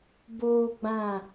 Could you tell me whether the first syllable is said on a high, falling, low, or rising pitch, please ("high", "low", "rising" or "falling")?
high